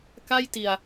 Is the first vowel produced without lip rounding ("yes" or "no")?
yes